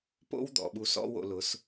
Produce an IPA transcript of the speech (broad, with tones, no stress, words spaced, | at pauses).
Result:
po̰˦wd̪ɔ̰˨ ɓu˧sɔ̰˦wo̰˧lʊ˨˦s